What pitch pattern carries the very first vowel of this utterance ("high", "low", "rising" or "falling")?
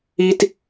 low